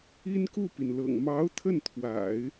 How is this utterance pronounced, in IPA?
i˥nku˥˩pi˩nlɤ̰˨˩ŋ mɑ˧˥ʊ̯ t̪ʰə˥˩nt̪ʰwa̰˨˩˦ɪ̯

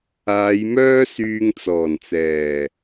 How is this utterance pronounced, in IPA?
aː˨˧jmœː˥ syː˧ŋt͡sɔː˨˩nt͡sɛː˨˩

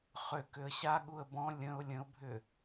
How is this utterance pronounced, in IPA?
χʏ kʏə̯ɕaɠuə̯ bɔ̃ lʲə̃ʊ̯ lʲə̃ʊ̯bʱʏ

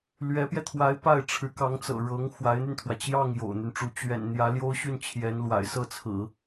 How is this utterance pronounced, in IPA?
lɥɛ˧˥pjɛ˧t̪ʰwa˧˥ɪ̯ pa˥˩ɪ̯ ʈ͡ʂʰɻ̩˧˥kɑ˧˥ŋt͡sɤ̰˨˩ ɻɤ˧˥ŋ xwa˧˥ɪ̯n̪y˧nt̪ʰwä˩ t͡ɕjɑ˥˩ŋ jo̰˨˩ʊ̯n̪y˦nʈ͡ʂu˧˥ t͡ɕɥɛ̰˨˩n n̪jä˧˥ljo˥ʊ̯ɕy˥˩n t͡ɕʰjɛ˧˥nlwa̰˨˩ɪ̯ sɤ˥˩t͡sʰɹ̩˨˩˦

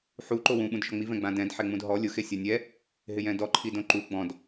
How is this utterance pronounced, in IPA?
ħu ǃowũ ɓũdʃɔŋ͡mi vɛ̃ɡ͡bãdɛ̃d ħɛŋ͡mũdɦɔ lʲʊ xesʲanʲɛ | ɦɪjɛ̃dɔ ǃʰidõǃu ɡ͡bɔ̃d

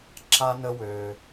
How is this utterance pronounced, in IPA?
ǁa˦nə˦wø˧

